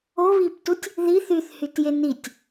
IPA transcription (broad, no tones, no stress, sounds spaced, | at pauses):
o β i p t u tʲ | ð i θ y θ h y t j e n i tʲ